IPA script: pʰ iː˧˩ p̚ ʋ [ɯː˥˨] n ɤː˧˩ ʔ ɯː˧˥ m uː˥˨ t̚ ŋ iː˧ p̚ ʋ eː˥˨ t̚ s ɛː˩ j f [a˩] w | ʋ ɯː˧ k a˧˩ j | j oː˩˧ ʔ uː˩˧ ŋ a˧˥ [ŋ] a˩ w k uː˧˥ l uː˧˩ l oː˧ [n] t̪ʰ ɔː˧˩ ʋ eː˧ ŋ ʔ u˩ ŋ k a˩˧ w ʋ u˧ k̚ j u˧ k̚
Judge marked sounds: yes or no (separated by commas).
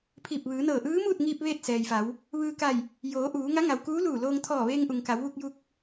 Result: no, no, yes, no